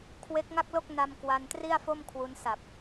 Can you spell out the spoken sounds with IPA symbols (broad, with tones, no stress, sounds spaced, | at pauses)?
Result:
kʰ w e˦˥ k̚ ŋ a˥˩ k̚ l o˥˩ k̚ n a˧ m k w a˧ n t r i˥˩ a̯ f o˥˩ m kʰ w u˦˥ n s a˨˩ p̚